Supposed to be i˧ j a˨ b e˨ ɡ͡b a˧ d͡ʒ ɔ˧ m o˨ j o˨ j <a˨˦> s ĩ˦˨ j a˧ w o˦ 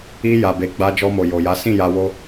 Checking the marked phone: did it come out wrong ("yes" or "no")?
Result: no